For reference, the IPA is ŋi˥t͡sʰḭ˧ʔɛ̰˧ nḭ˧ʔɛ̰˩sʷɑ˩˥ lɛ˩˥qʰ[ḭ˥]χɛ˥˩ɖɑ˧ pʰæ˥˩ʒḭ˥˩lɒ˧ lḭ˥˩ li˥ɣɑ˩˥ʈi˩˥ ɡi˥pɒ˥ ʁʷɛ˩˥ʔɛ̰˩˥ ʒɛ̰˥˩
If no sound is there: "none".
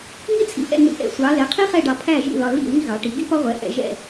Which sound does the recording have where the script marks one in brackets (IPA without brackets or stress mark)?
i˥